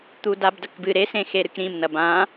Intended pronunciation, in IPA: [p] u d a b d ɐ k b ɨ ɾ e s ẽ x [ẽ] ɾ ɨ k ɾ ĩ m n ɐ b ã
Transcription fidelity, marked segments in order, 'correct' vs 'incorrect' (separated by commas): incorrect, incorrect